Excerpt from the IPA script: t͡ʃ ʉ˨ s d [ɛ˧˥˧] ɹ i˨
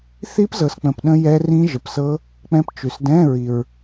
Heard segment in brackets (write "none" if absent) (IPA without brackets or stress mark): ɛ̃˧˥˧